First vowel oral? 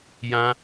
no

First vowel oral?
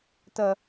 yes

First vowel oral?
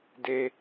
yes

